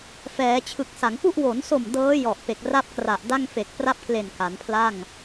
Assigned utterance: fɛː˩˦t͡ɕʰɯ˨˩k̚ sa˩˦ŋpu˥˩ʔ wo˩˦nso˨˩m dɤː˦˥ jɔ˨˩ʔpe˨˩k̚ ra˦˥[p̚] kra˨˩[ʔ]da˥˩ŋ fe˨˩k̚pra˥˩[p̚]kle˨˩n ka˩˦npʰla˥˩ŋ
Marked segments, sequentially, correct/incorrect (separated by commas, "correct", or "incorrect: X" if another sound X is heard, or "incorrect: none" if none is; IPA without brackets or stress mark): correct, correct, correct